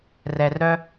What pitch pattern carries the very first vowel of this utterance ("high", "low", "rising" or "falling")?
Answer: low